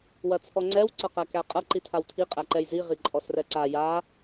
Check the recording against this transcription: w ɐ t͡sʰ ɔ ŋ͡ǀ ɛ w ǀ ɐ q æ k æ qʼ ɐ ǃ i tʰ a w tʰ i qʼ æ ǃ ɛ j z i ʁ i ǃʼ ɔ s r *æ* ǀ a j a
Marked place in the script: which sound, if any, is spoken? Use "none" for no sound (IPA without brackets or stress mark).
ɛ